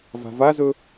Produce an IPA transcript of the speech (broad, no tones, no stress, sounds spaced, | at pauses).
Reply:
v a̤ v a z ɵ